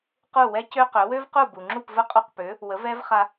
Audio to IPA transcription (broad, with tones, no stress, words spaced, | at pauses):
qu˥˩wɛ˥cø˥qø˩˥ wø˥vqu˥˩bu˩ŋ͡ǁu˥˩p və˥qʼu˥˩qpø˩˥ | wə˩˥vɛ˥vχa˧